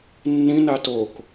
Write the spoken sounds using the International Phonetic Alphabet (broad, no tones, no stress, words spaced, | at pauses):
nːĩ natok